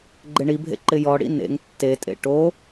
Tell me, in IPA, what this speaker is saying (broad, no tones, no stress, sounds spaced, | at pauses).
ɡ͡ǃ ɪ ɳ i bʱ ḛ ǃ ɪ j ɔ ɽ ḭ n ḛ ŋ tː e tʼ ḛ ʈ o